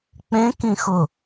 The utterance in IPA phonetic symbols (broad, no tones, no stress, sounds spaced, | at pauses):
k͡p ẽ k ĩ x ʊ